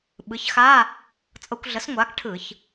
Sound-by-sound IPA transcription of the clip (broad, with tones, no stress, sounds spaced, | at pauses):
ɓ ɯ˩˥ ç x a˧˥˧ | t͡sʼ ɤ˧ kʷ ɮ ə˩˥ s ŋʷ aː˩˥ k ʈʰ ɯ˧˩˧ ç